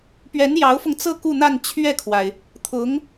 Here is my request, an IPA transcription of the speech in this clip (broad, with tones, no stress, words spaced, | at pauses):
pɥɛ˧˥njɑ˧˥ʊ̯fʊ˧ŋt͡sɤ˥˧ ku˥˧n̪a˥˧n t͡ɕʰɥɛ˥˩kʰwa˩ɪ̯ | t̪ʰʊ˧˥ŋ